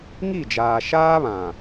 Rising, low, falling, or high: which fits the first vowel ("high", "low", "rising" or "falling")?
falling